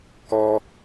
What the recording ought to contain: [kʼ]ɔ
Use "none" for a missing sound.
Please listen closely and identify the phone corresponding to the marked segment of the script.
k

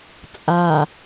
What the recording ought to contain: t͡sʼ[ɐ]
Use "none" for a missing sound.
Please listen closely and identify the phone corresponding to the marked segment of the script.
a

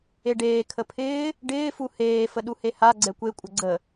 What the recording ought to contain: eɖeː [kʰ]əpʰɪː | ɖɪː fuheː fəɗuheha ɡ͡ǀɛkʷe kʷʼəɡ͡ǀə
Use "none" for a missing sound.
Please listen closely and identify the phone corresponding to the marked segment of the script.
kʰ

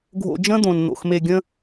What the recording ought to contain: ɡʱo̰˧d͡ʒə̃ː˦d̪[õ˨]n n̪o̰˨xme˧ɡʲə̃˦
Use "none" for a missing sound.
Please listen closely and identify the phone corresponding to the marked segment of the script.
õ˨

